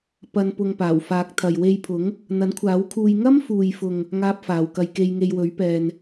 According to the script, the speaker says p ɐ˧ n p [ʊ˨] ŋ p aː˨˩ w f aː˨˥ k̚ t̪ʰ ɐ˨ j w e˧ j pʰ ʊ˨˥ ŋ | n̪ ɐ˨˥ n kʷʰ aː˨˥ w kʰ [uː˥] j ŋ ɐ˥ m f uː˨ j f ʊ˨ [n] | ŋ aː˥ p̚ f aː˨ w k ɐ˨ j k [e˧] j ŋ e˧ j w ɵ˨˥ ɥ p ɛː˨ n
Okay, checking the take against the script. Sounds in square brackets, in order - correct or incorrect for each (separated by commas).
incorrect, incorrect, incorrect, correct